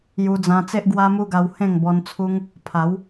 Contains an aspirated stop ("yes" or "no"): yes